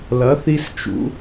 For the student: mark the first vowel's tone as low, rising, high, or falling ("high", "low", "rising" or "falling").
rising